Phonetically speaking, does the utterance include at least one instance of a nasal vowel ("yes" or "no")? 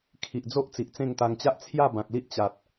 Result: yes